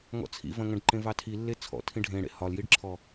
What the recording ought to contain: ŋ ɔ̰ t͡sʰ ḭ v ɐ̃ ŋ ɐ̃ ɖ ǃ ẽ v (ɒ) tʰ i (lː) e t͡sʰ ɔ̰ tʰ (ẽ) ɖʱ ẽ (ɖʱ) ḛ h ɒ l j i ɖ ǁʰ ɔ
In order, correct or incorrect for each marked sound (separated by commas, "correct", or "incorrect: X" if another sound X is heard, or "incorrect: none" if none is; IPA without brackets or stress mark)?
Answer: incorrect: ɑ, correct, incorrect: ĩ, incorrect: ɽ